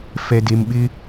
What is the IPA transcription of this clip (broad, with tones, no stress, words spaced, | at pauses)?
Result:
fɛ˨de˨mɓɪ˦